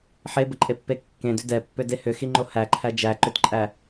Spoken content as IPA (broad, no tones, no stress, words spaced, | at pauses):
ħebəǃʼepːe kːẽdʏ dɛpːʏde hʏxiŋ͡ǃo hæǃʰæ d͡ʒæǃʏtǃʼæ